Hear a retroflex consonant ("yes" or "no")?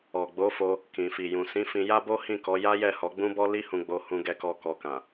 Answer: no